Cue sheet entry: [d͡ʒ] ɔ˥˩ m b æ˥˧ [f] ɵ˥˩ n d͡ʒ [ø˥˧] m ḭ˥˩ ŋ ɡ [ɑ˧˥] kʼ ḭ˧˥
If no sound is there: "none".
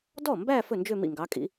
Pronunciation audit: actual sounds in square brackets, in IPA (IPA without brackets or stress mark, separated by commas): d, f, ø˥˧, ɑ˧˥